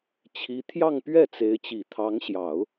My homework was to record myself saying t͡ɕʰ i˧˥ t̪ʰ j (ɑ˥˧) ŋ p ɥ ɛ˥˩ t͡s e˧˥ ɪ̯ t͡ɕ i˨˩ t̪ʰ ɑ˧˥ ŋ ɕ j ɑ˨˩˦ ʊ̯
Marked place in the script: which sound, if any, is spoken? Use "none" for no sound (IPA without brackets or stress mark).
ɑ˥˧